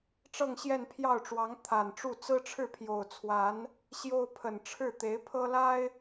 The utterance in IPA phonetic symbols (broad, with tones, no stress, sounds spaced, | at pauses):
ʈ͡ʂ ɤ˥˧ ŋ ɕ j ɛ˥˧ n pʰ j ɑ˥˩ ʊ̯ ʈ͡ʂ w ɑ˧˥ ŋ t̪ʰ a˨˩ n ʈ͡ʂ u˥˩ t͡s ɹ̩˥ ʈ͡ʂʰ ɻ̩˥˩ pʰ j o˨˩ ʊ̯ t͡sʰ w a˧˥ n | ɕ j o˥ ʊ̯ pʰ ə˨˩ n ʈ͡ʂʰ ɻ̩˥˩ t̪ e˧˥ ɪ̯ pʰ ɤ˥ l a˥ ɪ̯